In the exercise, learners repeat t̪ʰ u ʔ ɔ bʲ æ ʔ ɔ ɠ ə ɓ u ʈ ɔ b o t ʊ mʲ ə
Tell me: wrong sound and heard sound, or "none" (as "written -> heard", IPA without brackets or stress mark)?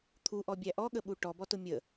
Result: o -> ɔ